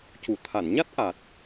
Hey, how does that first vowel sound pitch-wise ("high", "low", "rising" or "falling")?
low